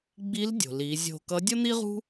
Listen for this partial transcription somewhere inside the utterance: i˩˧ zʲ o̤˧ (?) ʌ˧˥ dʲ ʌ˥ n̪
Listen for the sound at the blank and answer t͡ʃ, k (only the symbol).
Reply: k